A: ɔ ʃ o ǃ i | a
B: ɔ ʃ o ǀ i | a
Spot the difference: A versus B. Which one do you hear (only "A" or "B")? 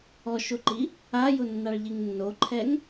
A